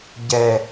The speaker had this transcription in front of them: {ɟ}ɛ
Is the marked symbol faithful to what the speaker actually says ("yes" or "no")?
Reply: yes